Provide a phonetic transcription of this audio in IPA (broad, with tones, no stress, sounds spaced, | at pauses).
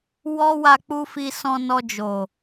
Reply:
w ɔ˦ w a˧ k͡p u˧ f i˧ s ɔ̃˧ n ɔ˧ d͡ʒ o˨